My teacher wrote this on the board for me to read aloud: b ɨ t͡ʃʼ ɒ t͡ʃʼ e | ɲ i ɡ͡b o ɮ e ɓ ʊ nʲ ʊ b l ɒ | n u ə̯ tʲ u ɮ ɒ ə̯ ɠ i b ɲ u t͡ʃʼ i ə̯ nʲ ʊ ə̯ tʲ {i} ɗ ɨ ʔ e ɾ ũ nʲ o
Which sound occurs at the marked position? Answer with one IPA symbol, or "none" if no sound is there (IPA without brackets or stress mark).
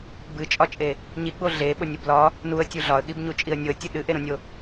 ɨ